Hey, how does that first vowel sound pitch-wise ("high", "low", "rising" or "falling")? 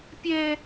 high